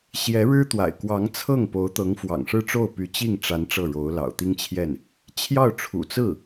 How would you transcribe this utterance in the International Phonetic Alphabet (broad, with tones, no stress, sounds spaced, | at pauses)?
ɕ j ɛ˧˥ ɻ ɻ̩˥ t̪ w a̰˨˩ ɪ̯ k w ɑ˧˥ ŋ t͡sʰ ɤ˥˩ ŋ p o˧˥ ʊ̯ t̪ ɤ˧˥ ŋ f w ɑ̰˨˩ ŋ ʂ ɻ̩˥˧ ʈ͡ʂ o˥˩ ʊ̯ p y˧˥ t͡ɕ i˥˩ ŋ ʈ͡ʂ a˧˥ n ʈ͡ʂ ɤ˥˩ ɻ o˧˥ ʊ̯ l ɑ̰˨˩ ʊ̯ t̪ i˥ ŋ t͡ɕʰ j ɛ˥˩ n | t͡ɕʰ j ɑ˥˩ ʊ̯ ʈ͡ʂʰ ṵ˨˩ t͡s ɹ̩˥˩